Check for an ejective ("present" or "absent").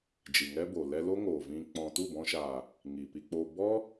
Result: absent